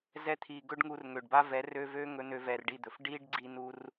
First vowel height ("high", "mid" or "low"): mid